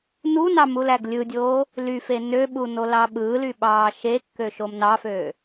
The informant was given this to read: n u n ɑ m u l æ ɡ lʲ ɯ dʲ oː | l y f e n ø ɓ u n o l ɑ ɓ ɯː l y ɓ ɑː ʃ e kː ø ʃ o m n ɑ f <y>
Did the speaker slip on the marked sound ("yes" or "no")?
yes